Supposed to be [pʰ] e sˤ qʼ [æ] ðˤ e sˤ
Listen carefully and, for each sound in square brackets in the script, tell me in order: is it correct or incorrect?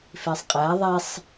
incorrect: f, correct

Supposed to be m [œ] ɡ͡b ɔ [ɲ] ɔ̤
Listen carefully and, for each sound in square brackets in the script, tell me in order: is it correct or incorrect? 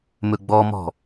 incorrect: ɵ, incorrect: m

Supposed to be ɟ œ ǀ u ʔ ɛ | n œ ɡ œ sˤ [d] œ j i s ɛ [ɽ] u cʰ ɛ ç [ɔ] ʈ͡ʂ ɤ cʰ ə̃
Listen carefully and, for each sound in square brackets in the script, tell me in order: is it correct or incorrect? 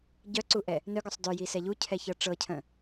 correct, incorrect: ʎ, incorrect: ɤ

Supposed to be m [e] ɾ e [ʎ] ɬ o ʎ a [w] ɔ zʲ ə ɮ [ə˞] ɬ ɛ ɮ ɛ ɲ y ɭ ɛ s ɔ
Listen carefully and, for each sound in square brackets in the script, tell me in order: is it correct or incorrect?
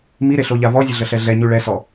incorrect: i, incorrect: none, incorrect: v, incorrect: ə

